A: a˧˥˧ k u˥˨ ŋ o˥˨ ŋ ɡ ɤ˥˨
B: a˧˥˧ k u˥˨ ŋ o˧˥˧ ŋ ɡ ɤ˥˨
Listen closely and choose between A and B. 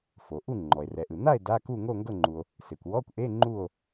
A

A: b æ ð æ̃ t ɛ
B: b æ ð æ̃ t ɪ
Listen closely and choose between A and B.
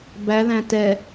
A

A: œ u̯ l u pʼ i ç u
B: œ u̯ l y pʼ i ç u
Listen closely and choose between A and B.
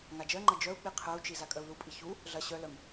A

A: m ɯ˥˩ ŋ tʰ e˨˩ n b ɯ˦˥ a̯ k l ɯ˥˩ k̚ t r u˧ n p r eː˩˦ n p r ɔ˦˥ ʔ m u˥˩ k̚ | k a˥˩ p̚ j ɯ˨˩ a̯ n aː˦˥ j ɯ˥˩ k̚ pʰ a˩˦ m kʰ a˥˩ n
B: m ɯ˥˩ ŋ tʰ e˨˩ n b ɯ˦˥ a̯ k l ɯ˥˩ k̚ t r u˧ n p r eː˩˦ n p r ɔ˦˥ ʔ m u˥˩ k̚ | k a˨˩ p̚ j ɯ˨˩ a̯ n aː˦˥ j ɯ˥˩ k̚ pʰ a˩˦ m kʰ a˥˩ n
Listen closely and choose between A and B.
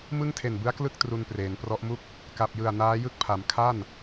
B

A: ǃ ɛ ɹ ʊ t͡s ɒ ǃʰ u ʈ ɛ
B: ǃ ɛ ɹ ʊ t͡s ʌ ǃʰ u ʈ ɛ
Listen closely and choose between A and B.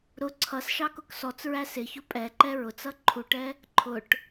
B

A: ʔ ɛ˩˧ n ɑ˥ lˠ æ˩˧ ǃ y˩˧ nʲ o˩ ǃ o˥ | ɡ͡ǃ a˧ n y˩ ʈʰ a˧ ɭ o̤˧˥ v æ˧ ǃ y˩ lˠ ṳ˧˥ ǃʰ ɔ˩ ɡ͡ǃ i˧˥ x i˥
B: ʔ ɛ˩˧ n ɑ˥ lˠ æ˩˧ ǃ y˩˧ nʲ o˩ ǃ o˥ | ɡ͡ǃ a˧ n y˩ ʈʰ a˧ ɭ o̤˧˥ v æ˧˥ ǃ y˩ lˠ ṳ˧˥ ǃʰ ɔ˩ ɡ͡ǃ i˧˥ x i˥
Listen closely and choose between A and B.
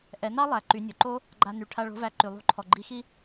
A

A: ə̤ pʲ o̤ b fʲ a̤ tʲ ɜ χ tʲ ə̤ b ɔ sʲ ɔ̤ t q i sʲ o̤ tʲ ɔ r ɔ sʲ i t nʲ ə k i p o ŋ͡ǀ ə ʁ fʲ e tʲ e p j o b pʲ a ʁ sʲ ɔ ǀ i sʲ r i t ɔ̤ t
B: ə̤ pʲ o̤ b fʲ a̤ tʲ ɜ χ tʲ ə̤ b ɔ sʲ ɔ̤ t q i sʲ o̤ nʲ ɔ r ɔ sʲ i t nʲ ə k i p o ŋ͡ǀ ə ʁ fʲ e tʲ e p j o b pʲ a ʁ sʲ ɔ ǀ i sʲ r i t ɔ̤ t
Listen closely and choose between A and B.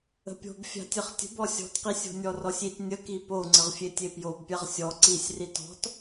B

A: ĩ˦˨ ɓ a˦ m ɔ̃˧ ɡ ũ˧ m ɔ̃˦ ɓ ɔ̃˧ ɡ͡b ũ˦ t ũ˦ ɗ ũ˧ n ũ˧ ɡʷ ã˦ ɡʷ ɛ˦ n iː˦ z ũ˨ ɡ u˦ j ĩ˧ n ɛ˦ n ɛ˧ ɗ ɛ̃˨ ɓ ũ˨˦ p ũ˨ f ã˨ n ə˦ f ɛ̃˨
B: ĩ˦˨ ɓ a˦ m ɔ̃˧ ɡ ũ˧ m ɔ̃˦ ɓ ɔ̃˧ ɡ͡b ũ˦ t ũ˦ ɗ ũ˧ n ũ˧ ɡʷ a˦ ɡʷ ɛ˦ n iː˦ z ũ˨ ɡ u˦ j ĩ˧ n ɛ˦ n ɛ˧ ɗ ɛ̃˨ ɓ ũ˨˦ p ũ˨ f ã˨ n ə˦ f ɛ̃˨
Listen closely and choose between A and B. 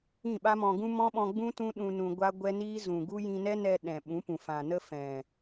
B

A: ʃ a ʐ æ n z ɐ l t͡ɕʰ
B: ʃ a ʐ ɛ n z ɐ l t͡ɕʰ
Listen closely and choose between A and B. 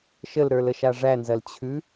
A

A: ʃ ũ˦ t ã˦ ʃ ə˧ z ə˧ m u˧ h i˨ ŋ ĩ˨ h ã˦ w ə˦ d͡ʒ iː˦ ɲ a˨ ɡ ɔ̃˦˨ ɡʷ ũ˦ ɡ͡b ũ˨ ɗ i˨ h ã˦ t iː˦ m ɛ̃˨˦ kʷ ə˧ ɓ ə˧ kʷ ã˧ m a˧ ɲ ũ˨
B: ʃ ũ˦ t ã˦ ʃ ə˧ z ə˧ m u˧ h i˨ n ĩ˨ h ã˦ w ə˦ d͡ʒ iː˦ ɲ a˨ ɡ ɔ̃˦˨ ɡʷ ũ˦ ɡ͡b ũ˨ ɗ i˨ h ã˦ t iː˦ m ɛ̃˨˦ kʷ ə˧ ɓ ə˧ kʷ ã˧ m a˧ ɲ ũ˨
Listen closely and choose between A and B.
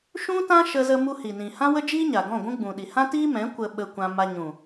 B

